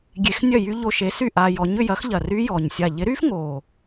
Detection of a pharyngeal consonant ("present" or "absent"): absent